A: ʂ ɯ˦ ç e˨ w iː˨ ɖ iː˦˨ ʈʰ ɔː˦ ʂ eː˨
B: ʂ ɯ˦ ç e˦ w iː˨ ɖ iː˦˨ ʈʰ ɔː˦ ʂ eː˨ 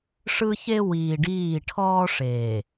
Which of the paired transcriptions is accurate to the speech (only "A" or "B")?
B